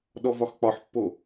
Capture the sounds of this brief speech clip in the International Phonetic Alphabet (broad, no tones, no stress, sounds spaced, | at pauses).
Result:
ɗ ɔ v ɒ x k͡p ɒ ħ pː o